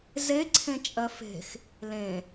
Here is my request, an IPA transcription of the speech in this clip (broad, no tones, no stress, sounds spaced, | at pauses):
z e ǀʰ ẽ t͡ʃʼ ɜ f e̤ x | l ẽ